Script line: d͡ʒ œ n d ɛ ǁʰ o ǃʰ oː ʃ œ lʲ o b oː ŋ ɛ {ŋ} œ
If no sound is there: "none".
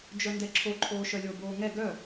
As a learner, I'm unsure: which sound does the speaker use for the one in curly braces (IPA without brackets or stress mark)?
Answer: ɡ